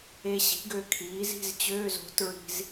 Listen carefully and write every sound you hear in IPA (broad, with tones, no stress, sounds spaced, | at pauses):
e˧ ɕ i̤˩˥ ɡ ø˧ kʰ iː˩˥ z i̤˧˥˧ z t͡ɕ øː˧˥˧ z o̤˩˥ t ɹ i̤˧ z